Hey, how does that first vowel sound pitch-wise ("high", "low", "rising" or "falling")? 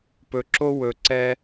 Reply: low